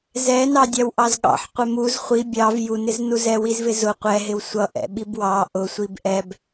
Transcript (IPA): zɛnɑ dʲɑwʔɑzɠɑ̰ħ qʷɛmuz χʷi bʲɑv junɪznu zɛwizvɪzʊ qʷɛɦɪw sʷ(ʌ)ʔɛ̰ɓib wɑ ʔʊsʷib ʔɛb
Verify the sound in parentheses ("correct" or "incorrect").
correct